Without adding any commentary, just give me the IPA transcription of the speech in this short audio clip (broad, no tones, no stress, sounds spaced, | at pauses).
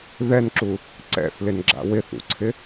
ð ɛ n ǁ u | ǀ ɛ̰ θ l ɪ n ɡ͡ǁ a̰ w ɪ θ ṵ ǀʰ ɪ